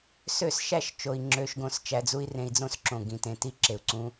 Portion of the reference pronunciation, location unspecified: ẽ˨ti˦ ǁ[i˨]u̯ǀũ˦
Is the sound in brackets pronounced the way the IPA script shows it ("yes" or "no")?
no